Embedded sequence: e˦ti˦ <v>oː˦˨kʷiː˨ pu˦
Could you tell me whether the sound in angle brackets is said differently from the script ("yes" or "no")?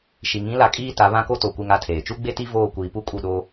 no